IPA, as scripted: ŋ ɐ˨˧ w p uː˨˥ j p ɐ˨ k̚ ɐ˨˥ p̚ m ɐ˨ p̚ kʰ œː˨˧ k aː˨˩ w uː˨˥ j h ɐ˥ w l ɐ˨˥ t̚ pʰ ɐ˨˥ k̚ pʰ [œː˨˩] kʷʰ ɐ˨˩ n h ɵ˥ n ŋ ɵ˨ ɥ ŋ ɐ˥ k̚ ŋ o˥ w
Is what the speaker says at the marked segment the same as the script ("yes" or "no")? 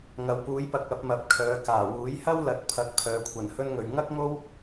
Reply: no